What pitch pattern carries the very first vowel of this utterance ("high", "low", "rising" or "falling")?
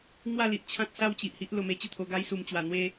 falling